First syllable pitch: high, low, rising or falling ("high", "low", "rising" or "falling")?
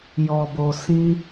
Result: low